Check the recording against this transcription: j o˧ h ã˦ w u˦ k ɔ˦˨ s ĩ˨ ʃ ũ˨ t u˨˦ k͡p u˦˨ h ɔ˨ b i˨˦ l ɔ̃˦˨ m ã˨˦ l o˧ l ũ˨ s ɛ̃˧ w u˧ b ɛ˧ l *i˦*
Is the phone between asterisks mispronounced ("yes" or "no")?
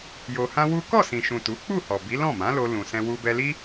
no